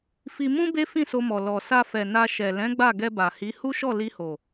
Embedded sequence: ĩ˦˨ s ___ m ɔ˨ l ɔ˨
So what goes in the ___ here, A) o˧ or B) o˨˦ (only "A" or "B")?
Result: A